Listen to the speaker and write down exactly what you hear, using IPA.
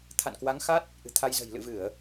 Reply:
t̪ʰ a̰˧˨ n k w a˨˦ ŋ x a˦˥ t̚ | ʔ ɨ̤˨˩ t̪ʰ a˧ j z ə̤˨˩ j l ɨ̰˧˨ v ɨ˧˩˨ ə̯

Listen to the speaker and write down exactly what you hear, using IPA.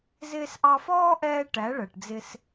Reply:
z ɪː˧ s ʔ ɑ˧ f ɔː˦ ʔ ɛː˧ ʈ æ˨˦ ɭ ɜ˨ ʈ d͡z ɪ˧ s

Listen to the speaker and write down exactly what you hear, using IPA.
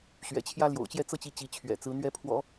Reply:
ɕ ɥ ɛ̰˨˩ t͡ɕʰ j ä˥ l j o̰˨˩ ʊ̯ t͡ɕ j ɛ˥˩ t͡s ɤ˥ t͡ɕ i˧˥ t͡ɕ i˧˥ t͡ɕʰ ɥ ɛ̰˨˩ t͡s ɹ̩˧˥ n̪ ɥ ɛ˧˥ pʰ w ɔ̰˨˩˦

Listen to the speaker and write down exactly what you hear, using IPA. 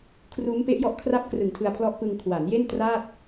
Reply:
kʰ r uː˦˥ m p e˦˥ ʔ j ɔ˦˥ ʔ kʰ r a˦˥ p̚ k r ɯ˨˩ ŋ tʰ ɯ˧ a̯ pʰ l ɔ˦˥ ʔ p ɯ˧ ŋ kʰ w a˩˦ n j e˥˩ n t r aː˥˩ t̚

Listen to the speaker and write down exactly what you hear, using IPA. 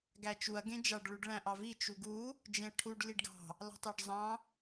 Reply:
ɡ æ t͡ʃ u ɐ̯ ɡ ẽ d͡ʒ ɑ ɖ ɭ u ɖ ɭ æ̃ ʔ ɑ v i t͡ʃ u ɡ u | d͡ʒ ẽ ɐ̯ ʈʰ u ɖ l i ɖ ɡ ɑ̤ | l ɑ̤ tˤ æ ɖ zˤ ɑ̃

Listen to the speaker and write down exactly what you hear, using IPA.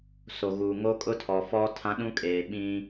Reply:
s o˨ ɣ uː˨ ŋ o˦ kʼ ʊ˦ tʰ ɔ˨ f ɔ˦ tʰ ã˦ ɗ ũ˦ kʼ eː˨ ɓ ĩ˦

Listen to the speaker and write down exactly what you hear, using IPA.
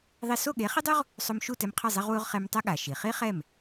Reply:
ðˤ i˧ s o˥˩ ɠ e˩˥ χ i˥ dˤ u˥ ʁ | sˤ o˧ m ʃ u˥˩ t ɛ˧ m qʰ ɐ˥˩ zˤ i˧ ʁ w u˧ ʁ χ e˧ m tˤ ɛ˥ ɠ a˩ ʃ i˩ χ i˥ χ ɛ˥˩ m

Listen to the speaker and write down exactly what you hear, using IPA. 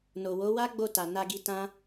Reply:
n o˨ w o˨˦ w a˦ ɡ͡b o˦˨ t a˨ n a˧ ɡ i˧ t ã˦

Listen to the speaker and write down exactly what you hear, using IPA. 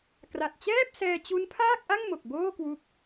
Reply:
k r a˨˩ t̚ t͡ɕ ɛː˥˩ p̚ s ɛː˧ t͡ɕ u˦˥ n pʰ aː˥˩ k̚ ʔ a˥˩ ŋ m o˨˩ k̚ b oː˥˩ k w u˦˥ k̚

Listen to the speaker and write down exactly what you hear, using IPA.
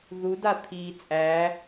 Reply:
ð u d a t̪ʰ iː t͡sʼ æ

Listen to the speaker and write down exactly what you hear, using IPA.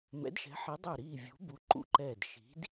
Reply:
m ɛ̰˨˥ d ʃ ɛ̤˨˥ ħ i˨˥ dˤ ø˧˩ ɾ iː˧˩ vʲ ṳ˨˥ b u˨˥ ǃ ṵ˧˩ ǃ ɛː˧˩ d ʃ i̤˨˥ d

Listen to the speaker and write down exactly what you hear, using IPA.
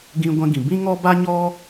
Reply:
ɡ ĩ˦ ɡʷ ɛ̃˦ ɡ ĩ˧ b ĩ˦ ŋ ɔ˦ b a˦ ɲ ɔ˦

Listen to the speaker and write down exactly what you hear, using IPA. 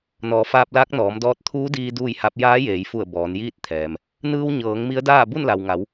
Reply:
n ɔː˩˧ f aː˧ p̚ l aː˧˥ k̚ n ɔː˩˧ m d ɔː˧ t̚ t̪ʰ uː˧˥ d iː˧ d uː˥˨ j h a˧˥ p̚ j aː˧˥ j eː˩˧ j f u˧˩ ə̯ b ɔː˩˧ n j iː˥˨ t̚ t̪ʰ ɛː˩ m | n ɯː˧ w ɲ ɤː˩˧ ŋ m i˧˥ ə̯ d aː˥˨ b u˥˨ n l a˩ w ŋ a˩˧ w

